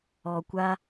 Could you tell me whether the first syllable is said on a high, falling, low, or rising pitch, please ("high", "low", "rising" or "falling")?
low